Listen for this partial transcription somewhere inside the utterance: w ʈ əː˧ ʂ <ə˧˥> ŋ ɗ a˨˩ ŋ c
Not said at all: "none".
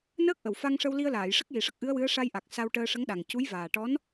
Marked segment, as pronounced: ə˧˥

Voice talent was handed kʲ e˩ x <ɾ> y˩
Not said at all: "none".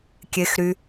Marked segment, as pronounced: ɾ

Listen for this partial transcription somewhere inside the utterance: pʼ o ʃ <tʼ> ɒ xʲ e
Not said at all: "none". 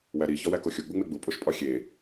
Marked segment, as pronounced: pʼ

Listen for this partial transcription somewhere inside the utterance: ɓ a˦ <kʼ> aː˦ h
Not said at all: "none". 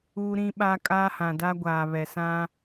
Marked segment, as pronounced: kʼ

